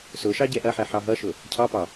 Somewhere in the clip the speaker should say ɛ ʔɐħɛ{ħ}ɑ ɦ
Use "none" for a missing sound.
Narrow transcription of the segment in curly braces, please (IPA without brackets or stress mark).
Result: ħ